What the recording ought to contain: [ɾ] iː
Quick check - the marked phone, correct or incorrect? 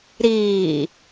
correct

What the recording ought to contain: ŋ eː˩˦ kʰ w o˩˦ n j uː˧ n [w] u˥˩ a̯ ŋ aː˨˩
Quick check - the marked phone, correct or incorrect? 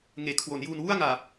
correct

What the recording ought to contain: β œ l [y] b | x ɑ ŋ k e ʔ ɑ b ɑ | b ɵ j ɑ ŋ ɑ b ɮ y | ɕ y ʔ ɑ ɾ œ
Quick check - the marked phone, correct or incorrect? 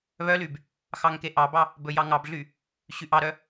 correct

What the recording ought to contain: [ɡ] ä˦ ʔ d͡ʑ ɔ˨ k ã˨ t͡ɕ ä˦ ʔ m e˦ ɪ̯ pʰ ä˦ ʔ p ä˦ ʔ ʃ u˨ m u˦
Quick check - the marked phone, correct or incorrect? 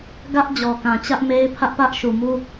correct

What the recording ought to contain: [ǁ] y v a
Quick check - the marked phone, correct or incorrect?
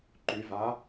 incorrect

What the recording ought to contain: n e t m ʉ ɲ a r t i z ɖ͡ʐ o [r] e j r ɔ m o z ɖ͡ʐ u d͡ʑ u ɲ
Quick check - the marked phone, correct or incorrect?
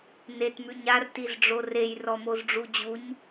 correct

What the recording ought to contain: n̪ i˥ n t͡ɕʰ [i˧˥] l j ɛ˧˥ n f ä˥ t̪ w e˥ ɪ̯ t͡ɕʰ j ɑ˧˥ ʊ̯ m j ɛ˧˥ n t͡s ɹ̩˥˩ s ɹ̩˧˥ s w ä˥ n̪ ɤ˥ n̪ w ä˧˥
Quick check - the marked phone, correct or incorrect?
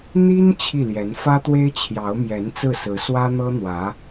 incorrect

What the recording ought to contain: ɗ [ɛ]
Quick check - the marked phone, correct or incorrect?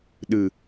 incorrect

